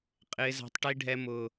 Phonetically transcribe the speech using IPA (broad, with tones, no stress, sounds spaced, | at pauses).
qʼ ɪː˦ z æ̤˦ tˤ ʈ i˦ ɖʱ ɛ˦ m ʊː˦